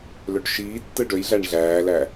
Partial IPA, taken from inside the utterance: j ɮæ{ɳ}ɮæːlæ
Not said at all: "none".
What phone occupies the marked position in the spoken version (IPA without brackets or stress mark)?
ɳ